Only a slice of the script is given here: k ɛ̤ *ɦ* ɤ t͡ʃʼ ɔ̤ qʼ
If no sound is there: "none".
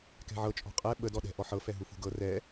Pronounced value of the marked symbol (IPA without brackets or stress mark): ʕ